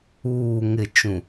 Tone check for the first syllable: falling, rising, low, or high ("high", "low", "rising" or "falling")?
low